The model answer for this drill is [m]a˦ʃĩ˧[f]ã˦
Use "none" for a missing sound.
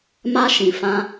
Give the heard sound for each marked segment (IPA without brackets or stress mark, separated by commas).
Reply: m, f